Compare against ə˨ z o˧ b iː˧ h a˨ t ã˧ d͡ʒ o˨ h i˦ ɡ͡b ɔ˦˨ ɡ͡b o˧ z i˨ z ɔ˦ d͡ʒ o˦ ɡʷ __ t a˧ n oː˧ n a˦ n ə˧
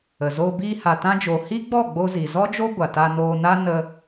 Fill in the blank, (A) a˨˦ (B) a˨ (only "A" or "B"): B